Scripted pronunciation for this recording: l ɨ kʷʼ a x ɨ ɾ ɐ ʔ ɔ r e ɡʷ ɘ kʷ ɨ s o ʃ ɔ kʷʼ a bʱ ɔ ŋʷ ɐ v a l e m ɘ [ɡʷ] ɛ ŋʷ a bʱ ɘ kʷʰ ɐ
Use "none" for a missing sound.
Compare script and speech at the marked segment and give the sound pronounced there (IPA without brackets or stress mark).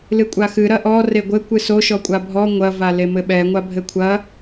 ɓ